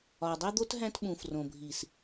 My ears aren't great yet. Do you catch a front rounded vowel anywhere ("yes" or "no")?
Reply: no